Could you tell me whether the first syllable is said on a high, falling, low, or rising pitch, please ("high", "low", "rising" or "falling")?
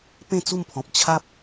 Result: falling